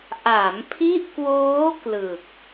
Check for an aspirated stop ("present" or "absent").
present